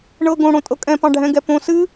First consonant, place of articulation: retroflex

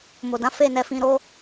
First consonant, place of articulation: labial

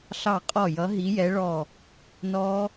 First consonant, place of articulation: alveolar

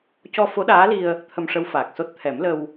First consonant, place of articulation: palatal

